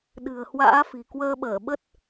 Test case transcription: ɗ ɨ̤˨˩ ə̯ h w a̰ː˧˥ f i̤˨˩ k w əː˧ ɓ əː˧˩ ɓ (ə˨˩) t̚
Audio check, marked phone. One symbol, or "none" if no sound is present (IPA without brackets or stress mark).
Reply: ə˦˥